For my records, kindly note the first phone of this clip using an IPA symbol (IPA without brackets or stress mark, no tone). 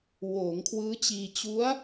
w